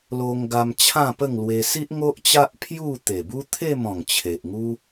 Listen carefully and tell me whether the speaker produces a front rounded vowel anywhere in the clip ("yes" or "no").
no